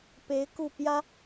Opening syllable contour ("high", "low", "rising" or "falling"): rising